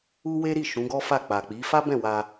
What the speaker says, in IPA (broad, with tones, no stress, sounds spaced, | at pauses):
u˦ w e˦ ɾ i˦˨ ʃ ũ˨˦ ɡ ɔ˦ f a˦˨ k͡p a˨ k͡p i˨˦ f a˦ b ɛ̃˦˨ w a˧